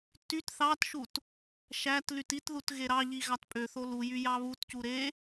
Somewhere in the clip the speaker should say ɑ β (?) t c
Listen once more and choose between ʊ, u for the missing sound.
u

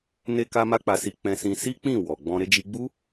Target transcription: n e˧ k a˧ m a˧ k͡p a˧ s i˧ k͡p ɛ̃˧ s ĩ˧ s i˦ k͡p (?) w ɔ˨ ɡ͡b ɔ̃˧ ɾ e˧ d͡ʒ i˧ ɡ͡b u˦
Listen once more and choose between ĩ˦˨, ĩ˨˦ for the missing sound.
ĩ˦˨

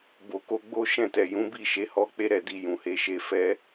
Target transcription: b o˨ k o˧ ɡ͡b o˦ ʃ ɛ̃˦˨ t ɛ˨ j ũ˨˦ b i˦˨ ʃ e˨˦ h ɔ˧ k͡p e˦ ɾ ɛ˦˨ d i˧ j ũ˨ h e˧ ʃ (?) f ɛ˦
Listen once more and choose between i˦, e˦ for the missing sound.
e˦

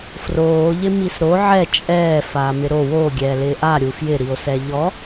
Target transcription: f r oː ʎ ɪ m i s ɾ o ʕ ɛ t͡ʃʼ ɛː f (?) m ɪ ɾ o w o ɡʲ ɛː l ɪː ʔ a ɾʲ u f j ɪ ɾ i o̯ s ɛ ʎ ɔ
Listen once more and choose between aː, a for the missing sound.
aː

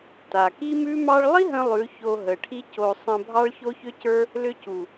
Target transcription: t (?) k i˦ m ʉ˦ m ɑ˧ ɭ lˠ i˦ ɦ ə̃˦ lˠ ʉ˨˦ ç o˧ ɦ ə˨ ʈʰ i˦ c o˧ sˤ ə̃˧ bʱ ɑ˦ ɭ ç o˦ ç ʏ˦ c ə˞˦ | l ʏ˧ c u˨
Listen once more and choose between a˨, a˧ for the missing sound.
a˨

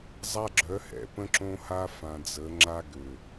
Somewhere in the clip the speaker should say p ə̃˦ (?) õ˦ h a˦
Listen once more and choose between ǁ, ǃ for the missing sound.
ǁ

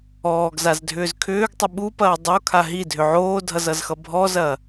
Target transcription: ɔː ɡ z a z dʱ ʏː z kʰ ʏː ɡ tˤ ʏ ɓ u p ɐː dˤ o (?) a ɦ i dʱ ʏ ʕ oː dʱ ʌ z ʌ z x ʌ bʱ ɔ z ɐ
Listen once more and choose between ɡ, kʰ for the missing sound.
kʰ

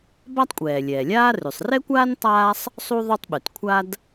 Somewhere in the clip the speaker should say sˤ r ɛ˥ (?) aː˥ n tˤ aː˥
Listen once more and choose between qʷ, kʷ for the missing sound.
kʷ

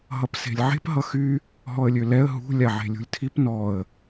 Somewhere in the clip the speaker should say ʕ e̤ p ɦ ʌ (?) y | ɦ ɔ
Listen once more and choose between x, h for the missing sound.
x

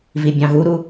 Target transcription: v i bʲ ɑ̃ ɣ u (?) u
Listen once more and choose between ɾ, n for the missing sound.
ɾ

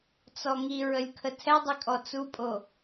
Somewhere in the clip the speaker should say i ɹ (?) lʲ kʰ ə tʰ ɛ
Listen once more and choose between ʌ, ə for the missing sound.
ə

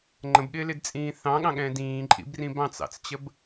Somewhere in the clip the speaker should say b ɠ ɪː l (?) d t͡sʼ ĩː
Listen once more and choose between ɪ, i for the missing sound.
ɪ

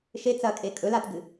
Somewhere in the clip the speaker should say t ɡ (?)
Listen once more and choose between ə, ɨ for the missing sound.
ɨ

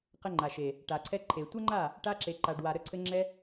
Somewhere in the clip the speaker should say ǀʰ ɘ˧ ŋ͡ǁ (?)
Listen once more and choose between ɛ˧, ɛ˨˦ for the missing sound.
ɛ˧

